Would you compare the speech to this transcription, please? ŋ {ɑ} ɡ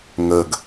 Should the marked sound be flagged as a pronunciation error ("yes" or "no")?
yes